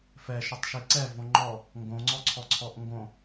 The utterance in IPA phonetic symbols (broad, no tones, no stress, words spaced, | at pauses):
fɛ ʃotˤʃiǀɛ võŋ͡ǃɔ | ŋɡõŋ͡ǀɔǀʰɔǀʰɔʔ ŋɡõ